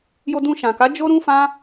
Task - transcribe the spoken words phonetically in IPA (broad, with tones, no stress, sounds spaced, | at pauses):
j o˧ d ũ˧ ʃ ã˨ k a˨˦ d͡ʒ o˦ ɾ ũ˦ f ã˦